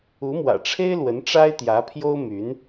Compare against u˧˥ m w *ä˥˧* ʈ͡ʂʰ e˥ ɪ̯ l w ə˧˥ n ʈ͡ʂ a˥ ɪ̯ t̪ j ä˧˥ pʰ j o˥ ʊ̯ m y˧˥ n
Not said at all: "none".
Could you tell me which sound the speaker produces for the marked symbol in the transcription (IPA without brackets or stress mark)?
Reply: ä̰˨˩